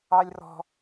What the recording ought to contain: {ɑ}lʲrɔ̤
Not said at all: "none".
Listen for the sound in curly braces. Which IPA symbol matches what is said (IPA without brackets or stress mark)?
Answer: ɑ